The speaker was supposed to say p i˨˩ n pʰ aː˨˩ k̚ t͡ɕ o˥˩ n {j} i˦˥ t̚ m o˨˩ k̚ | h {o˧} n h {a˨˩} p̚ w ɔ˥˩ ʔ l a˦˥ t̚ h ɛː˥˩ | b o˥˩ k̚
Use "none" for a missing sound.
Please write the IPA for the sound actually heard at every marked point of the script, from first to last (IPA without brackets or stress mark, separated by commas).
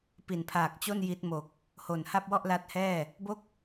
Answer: j, o˨˩, a˥˩